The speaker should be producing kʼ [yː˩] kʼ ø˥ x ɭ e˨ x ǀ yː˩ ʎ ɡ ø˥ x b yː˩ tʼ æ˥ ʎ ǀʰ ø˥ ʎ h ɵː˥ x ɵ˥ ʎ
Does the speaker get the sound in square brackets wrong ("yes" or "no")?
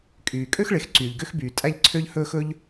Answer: no